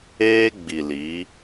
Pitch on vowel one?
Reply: high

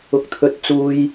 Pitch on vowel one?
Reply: rising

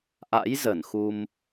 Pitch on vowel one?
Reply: rising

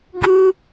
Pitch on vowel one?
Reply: high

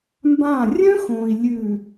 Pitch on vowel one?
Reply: falling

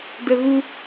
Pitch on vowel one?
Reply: high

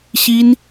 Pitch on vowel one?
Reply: high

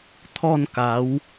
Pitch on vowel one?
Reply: falling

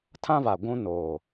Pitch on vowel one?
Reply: high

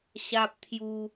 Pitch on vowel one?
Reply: high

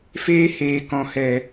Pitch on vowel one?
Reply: high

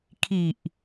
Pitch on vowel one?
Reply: low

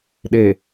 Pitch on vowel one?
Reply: low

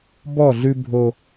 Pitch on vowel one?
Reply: falling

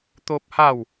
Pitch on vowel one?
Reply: high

